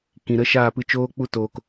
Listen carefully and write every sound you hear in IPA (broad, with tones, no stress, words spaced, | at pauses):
kĩ˨ ɾə˧ʃaː˦˨ pɨ˧t͡ʃoː˦k͡pu˦ toː˨k